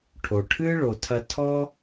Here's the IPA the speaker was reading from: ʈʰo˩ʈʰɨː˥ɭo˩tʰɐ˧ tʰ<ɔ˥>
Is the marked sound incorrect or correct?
correct